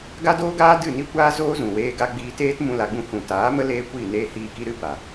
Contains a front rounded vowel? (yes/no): no